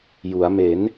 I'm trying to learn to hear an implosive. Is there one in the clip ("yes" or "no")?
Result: no